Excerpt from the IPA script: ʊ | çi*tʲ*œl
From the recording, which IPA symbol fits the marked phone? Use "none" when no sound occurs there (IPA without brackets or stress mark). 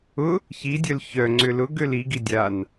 dʲ